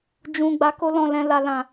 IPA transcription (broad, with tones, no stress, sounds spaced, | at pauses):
d͡ʒ ũ˨ ɡ͡b a˨˦ k o˦ l ɔ̃˧ l ɛ̃˧ l a˧ l ã˧